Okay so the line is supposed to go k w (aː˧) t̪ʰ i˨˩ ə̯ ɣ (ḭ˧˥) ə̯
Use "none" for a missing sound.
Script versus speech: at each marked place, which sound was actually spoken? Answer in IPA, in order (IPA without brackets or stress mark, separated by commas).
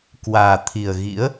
aː˨˩, ḭ˧˥